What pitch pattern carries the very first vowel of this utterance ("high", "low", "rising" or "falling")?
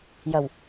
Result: low